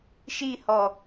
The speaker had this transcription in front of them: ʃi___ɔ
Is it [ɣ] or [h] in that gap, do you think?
h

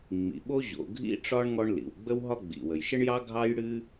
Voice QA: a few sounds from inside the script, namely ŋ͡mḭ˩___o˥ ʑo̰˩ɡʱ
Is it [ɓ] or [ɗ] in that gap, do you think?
ɓ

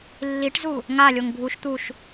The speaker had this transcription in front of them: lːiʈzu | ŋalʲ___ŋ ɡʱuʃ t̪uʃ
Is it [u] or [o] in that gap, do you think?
o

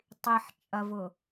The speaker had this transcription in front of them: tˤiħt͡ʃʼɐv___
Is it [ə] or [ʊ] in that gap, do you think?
ʊ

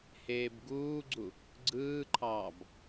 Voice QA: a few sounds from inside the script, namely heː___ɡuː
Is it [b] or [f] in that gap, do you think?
b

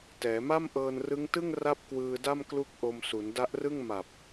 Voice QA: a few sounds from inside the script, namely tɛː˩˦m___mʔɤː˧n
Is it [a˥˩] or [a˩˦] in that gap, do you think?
a˥˩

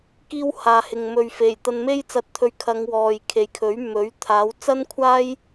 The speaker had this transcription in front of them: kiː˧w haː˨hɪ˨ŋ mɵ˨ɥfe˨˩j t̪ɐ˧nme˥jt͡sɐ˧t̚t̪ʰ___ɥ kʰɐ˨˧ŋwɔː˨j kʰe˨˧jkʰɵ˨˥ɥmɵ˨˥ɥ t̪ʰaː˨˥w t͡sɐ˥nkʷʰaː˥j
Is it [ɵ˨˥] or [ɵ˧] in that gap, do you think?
ɵ˧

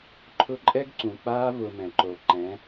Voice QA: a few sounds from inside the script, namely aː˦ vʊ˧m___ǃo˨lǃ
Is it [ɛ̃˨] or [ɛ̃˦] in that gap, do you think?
ɛ̃˨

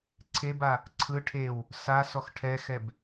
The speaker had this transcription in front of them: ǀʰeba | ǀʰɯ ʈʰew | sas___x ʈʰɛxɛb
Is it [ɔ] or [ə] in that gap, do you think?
ɔ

